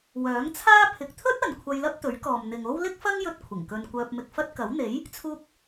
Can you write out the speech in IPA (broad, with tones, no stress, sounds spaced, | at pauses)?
w œː˨˥ ŋ t͡sʰ aː˥ pʰ ɪ˨ k̚ t̪ʰ ɵ˥ t̚ ɐ˨ n kʷʰ ɐ˧ j l ɐ˥ p̚ t̪ ɵ˨˥ ɥ k ɔː˨ m n̪ ɪ˨ ŋ o˥ w l ɪ˥ k̚ f ɐ˥ ŋ j ɵ˧ t̚ kʷʰ ɪ˨˩ ŋ k ɵ˧ n kʷ œː˧ p̚ m ɪ˧ k̚ f ɐ˥ t̚ k ɐ˨˥ w n̪ e˨˥ j | t͡sʰ uː˧ k̚